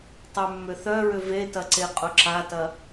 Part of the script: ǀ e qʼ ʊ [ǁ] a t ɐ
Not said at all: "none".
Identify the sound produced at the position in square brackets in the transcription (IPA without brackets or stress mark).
ǁ